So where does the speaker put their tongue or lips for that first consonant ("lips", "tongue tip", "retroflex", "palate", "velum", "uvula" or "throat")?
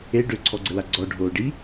retroflex